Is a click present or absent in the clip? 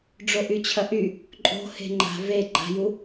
present